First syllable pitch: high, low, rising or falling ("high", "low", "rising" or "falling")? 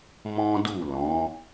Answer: high